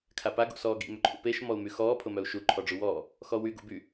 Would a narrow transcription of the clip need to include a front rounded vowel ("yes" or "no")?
yes